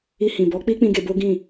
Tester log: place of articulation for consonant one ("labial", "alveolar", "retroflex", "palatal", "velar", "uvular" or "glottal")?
glottal